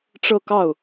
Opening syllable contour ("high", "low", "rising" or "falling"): falling